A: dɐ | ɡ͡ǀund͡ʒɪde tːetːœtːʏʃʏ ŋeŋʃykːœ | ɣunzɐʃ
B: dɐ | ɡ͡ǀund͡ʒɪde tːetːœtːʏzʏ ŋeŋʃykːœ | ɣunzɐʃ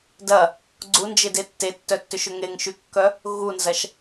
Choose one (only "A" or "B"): A